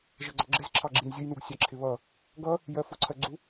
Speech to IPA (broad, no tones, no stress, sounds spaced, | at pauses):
ʒ ə ɡ͡ǀ ʌ ɡ͡ǁ ɪ z ǁʰ ɑ ɡ͡ǁ i n zʲ ʊ j n u ɡ sʲ ɑ ǁʰ ɪ β ʌ | ɡ ʌ | j ɜ f ʊ ǀʰ ɜ ɡ͡ǀ u